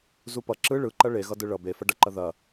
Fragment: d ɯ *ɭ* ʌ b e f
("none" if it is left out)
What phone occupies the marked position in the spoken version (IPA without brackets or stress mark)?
ɭ